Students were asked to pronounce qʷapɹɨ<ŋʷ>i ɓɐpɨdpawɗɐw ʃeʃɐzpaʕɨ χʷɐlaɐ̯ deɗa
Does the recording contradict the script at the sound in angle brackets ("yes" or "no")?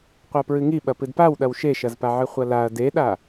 yes